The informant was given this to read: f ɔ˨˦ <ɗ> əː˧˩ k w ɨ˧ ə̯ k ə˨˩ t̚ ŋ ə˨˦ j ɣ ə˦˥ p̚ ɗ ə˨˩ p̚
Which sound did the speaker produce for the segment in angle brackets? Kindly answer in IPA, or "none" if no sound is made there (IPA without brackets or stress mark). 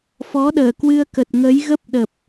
ɗ